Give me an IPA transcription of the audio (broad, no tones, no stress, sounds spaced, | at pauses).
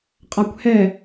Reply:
qʼ a kʷ h ɛ